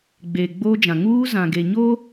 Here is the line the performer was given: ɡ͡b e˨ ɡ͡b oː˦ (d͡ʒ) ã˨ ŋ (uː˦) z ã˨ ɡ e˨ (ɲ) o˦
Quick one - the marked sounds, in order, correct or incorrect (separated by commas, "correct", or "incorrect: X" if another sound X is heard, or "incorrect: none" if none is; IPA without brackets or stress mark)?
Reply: correct, correct, correct